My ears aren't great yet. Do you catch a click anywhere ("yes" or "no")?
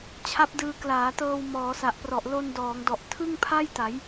no